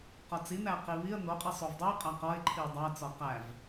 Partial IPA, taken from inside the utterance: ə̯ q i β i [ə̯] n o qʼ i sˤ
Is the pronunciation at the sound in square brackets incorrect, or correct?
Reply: correct